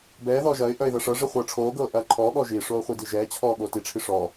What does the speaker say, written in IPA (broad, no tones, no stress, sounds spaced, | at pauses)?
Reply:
b ɛː ð ɔː ʒ ɐː ɪ̯ ʔ œ ɪ̯ ð ɐ ʂ ɤ ʐ i χʷ ɤː ʈ͡ʂʰ oː ɡ ɤː ʔ ɐː ǃʰ ɔː ɠ ɔ ʒ i ʂ oː χʷ i d i ʒ ɛː t͡ɕʰ ɔː ɠ oː t i ʈ͡ʂʰ i ʂ ɔ